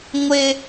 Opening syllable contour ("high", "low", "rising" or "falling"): high